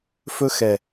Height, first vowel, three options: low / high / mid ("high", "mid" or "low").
mid